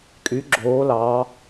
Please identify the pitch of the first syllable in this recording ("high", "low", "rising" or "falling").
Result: rising